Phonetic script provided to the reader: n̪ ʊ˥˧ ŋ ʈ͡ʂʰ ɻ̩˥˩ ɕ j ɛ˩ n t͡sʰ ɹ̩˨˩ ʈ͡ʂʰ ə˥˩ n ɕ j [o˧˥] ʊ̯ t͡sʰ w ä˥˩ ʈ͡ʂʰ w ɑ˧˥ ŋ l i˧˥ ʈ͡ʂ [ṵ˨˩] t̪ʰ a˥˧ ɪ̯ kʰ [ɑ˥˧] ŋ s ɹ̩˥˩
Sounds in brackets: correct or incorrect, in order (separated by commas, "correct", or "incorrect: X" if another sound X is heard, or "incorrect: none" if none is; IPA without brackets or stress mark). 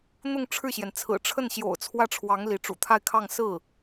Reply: incorrect: o̰˨˩, correct, correct